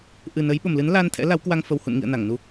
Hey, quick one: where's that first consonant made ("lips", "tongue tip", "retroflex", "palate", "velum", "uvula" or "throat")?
throat